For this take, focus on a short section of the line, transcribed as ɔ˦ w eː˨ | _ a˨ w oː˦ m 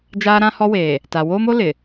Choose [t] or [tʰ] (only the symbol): t